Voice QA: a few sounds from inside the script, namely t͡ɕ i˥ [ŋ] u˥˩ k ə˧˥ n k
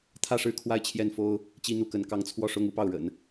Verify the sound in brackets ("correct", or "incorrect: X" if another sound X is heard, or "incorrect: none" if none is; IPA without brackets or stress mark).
incorrect: n̪